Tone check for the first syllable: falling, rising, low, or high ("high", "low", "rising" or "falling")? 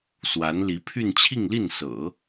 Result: rising